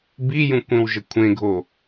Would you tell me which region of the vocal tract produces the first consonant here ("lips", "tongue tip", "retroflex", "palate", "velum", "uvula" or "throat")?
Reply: lips